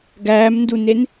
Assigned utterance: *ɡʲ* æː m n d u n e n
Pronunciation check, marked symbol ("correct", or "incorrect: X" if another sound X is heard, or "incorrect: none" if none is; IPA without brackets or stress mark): incorrect: ɡ